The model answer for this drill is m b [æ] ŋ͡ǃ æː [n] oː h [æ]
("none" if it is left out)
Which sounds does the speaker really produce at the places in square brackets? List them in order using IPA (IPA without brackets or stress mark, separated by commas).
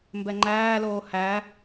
ɛ, l, æ